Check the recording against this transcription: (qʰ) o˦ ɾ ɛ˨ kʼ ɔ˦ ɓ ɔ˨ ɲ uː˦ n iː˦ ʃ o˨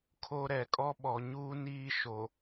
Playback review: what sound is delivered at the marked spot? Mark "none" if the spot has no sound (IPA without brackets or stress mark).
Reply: kʰ